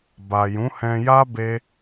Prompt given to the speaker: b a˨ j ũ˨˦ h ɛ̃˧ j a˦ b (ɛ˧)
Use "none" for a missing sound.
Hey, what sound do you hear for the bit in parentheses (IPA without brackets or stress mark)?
e˧